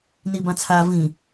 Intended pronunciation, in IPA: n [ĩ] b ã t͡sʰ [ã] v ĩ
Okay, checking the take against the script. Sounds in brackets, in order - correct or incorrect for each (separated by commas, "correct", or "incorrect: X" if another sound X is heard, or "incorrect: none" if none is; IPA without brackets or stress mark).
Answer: incorrect: i, incorrect: a